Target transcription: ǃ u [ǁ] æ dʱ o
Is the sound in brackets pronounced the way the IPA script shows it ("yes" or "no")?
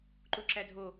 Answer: yes